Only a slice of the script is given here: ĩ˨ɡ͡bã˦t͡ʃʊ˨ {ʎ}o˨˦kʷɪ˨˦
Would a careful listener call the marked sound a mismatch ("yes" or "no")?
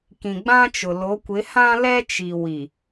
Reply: yes